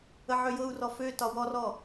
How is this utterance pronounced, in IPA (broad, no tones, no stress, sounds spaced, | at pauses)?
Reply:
ə ʕ ø j ɤ u̯ r ɔ f ø t ɒ w ɔ r ɔ